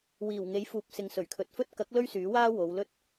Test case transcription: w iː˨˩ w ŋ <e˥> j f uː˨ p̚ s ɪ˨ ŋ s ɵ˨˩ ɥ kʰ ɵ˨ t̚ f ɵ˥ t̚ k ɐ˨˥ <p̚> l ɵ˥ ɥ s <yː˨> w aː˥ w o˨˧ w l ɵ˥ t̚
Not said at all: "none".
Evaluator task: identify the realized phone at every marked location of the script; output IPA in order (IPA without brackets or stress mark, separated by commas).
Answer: e˨˥, k̚, yː˨˥